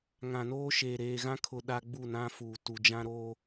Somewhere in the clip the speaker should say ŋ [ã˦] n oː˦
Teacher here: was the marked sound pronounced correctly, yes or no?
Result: no